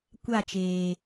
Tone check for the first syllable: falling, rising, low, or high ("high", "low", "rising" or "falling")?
falling